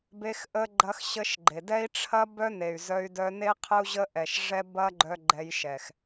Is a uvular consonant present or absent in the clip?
present